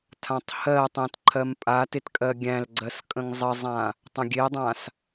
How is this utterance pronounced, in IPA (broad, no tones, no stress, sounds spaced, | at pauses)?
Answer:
tʰ ã tˤ h ɜ tˤ ẽ t ǃʰ ɜ m pʼ a t e t kʼ ɜ ɡʲ æ̃ l ɡ͡ǀ ɜ s kʼ ə̃ ŋ zˤ ə zˤ ã | tˤ ə̃ ɡʲ e dˤ ã s